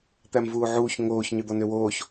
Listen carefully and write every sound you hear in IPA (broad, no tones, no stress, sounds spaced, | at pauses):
t̪ æ m v uː ʕ uː ç ŋ oː ç ɲ ø d̪ ɔ n ø w oː ç